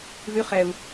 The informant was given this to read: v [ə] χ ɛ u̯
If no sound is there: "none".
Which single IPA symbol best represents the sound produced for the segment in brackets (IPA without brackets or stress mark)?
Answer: ʉ